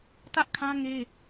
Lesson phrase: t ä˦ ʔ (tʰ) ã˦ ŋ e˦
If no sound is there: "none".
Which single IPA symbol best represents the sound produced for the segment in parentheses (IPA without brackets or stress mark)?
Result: kʰ